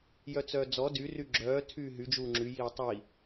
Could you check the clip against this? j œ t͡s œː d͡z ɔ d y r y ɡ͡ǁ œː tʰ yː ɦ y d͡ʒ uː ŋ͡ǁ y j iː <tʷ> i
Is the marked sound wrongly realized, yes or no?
yes